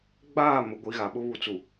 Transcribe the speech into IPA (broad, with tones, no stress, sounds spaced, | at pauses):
ɡ͡b aː˦˨ m ʊ˨˦ ɡʷ i˨˦ ɣ a˨ ɓ ʊ˦ β u˨ t͡s u˨